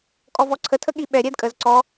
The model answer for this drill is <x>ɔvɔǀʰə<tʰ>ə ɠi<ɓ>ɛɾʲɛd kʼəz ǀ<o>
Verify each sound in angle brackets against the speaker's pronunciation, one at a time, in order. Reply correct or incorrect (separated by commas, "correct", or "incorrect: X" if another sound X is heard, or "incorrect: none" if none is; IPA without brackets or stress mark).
incorrect: kʼ, correct, correct, incorrect: ɔ